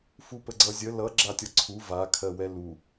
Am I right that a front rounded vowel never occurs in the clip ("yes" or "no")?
yes